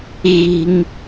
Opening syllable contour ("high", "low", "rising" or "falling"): high